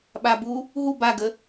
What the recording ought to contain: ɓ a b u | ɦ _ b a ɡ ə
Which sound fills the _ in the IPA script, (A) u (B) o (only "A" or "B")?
A